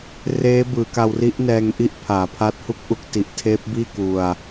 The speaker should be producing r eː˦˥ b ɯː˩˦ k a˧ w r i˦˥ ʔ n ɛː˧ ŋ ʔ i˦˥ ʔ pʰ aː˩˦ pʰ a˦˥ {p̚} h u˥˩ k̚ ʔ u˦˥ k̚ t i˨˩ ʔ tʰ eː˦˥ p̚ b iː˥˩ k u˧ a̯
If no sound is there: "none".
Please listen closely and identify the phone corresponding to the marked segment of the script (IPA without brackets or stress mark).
t̚